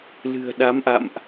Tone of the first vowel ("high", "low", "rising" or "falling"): low